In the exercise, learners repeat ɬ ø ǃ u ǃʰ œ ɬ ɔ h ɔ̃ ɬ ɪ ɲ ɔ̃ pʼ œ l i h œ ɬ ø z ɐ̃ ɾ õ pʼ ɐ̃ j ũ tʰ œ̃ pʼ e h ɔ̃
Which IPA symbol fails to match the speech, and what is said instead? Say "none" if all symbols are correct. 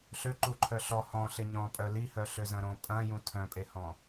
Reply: none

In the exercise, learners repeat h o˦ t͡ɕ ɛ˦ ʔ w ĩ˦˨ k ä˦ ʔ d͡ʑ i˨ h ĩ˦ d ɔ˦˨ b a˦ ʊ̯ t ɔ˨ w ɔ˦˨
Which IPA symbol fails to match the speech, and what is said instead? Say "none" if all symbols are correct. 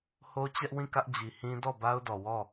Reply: t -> d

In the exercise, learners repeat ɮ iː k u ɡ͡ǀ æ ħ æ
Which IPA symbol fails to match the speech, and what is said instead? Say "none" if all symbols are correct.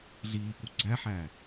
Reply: none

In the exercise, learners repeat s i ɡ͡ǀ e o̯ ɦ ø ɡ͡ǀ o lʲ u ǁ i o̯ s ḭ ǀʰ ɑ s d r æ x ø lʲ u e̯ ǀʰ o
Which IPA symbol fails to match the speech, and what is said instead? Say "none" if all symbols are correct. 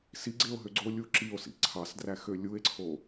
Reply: none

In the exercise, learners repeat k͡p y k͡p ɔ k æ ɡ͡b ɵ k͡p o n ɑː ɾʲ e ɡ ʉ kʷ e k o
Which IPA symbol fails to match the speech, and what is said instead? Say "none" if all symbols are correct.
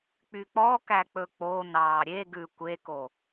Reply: ɡ͡b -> k͡p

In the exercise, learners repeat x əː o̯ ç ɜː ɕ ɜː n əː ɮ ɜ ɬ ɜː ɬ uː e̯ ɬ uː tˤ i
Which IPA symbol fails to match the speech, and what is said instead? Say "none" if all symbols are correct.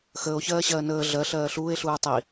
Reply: none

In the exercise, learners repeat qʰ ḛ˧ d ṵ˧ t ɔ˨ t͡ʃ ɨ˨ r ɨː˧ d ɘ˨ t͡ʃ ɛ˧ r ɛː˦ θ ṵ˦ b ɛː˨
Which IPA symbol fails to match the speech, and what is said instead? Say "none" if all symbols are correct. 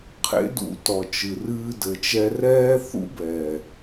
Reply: ḛ˧ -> ḛ˦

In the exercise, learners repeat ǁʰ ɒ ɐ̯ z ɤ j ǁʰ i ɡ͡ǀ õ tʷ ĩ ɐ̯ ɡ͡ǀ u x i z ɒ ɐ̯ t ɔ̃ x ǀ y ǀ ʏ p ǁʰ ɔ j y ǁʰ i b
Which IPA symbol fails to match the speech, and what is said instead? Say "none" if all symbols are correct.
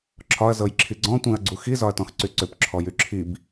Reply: õ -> ɔ̃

